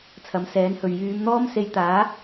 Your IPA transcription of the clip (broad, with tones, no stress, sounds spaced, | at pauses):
t͡sʰ ɐ˨˥ m s ɛː˨˥ n h ɵ˨ ɥ j yː˨˧ m n̪ ɔː˥ m s e˧ j t̪ aː˨˥